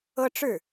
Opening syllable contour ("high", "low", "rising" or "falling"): high